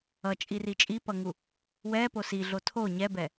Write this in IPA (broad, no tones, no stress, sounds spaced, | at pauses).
ʌ t͡ʃʼ i r i t͡ʃʼ i p ʌ ŋ u | w ɛ p o s i ɮ o tʰ o ɲ ɛ b ɛ